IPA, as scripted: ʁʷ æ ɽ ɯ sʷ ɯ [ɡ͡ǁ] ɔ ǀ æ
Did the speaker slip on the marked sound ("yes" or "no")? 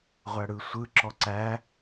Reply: yes